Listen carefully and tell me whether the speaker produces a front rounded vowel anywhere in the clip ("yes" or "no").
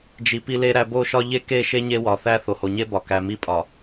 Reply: no